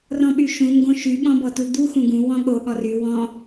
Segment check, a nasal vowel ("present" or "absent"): present